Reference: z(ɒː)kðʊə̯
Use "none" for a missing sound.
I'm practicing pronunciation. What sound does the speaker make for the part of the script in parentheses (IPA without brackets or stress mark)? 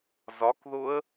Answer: ɒ